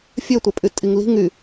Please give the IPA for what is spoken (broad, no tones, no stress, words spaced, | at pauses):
fʲøtʷæpʼytʼiŋ li̤ ŋy